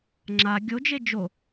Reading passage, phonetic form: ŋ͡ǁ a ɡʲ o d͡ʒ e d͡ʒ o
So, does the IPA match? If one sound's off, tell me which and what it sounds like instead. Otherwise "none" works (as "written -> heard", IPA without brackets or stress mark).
none